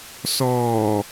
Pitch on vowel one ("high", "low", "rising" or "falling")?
low